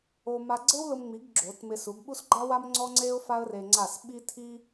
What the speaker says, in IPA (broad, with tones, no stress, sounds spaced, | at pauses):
o˧ m a˧ ɡ͡ǀ e˦ w l ʊ˧ m ŋ͡m i˨˦ ɡ ɡ͡ǁ o˨˦ t m ɪ˧ s u˨˦ ɡ ɓ u˦ s ɡ͡ǃ a˦ w a˦ m ŋ͡ǀ ɔ˦ ŋ͡ǀ e˦ ʊ̯ f a˦ ə̯ r e˧ ŋ͡ǀ a˦˨ s ɓ i˦ tʰ i˦